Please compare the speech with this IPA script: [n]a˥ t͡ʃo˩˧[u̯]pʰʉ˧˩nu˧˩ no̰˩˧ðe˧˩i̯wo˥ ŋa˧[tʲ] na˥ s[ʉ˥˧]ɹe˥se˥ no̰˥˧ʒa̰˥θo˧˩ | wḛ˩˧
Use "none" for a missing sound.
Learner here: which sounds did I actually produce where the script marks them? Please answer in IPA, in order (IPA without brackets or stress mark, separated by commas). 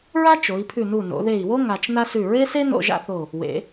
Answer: ɹ, i̯, t͡ʃ, ʉ˧˩